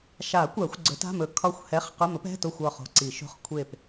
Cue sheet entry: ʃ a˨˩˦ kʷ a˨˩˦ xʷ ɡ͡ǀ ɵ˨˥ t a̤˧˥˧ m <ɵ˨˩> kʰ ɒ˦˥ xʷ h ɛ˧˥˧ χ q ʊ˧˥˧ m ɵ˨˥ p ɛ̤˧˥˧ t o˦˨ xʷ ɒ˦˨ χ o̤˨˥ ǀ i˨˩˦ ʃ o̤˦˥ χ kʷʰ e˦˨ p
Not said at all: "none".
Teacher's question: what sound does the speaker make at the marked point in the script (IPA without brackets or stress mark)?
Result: ɵ˨˩˦